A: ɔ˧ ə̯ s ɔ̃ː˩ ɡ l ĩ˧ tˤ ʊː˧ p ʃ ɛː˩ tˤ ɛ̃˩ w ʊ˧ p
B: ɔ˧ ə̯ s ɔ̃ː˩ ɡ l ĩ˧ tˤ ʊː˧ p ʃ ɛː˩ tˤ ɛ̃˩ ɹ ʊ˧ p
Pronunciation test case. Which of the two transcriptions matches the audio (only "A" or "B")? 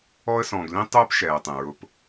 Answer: B